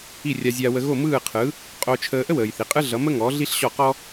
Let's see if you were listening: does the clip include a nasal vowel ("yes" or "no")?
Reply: no